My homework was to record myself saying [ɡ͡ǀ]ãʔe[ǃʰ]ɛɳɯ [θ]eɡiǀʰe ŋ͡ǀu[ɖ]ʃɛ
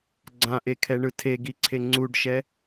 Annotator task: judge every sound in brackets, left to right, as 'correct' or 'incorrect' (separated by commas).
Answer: correct, incorrect, incorrect, correct